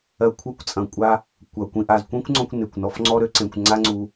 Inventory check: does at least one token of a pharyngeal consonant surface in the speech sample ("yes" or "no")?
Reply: no